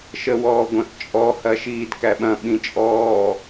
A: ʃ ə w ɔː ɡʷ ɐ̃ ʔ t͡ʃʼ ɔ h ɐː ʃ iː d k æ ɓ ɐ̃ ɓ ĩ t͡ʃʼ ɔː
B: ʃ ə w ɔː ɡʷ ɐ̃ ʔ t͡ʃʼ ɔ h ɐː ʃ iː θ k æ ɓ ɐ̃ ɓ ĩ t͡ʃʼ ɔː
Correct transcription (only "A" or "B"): A